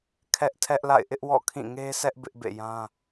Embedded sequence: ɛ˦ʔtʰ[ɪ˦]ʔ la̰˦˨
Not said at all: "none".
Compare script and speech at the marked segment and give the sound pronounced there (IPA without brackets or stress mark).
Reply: ɛ˦